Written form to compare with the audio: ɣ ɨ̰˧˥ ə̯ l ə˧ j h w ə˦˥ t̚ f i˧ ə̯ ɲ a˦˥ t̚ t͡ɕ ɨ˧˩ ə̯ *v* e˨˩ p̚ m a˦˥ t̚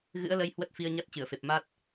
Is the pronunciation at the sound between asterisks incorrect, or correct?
incorrect